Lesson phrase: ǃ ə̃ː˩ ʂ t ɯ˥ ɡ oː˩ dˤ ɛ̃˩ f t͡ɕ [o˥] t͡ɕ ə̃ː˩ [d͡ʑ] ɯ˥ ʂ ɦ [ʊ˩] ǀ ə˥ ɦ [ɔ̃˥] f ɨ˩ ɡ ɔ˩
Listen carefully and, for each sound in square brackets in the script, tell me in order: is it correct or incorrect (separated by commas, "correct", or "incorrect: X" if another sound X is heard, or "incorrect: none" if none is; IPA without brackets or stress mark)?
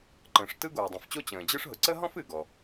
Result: correct, correct, correct, correct